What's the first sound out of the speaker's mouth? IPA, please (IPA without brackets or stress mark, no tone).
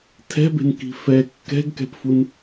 tʰ